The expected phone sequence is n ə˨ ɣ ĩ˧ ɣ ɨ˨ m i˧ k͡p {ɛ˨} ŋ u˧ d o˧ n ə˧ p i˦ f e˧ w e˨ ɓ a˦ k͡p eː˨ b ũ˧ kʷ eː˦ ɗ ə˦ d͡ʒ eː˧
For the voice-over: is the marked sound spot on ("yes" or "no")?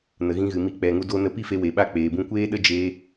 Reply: yes